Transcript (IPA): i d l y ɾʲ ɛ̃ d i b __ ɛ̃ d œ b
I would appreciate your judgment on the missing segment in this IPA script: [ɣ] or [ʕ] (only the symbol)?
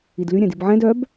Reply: ʕ